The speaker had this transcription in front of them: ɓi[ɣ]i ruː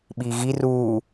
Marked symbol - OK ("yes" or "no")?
yes